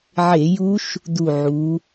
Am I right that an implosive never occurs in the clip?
yes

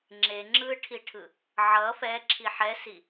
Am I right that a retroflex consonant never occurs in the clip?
no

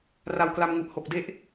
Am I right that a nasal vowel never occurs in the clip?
yes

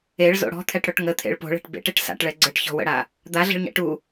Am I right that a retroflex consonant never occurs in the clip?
no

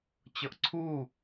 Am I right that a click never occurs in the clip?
no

